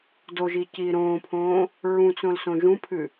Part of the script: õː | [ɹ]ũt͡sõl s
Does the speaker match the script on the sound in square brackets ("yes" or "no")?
yes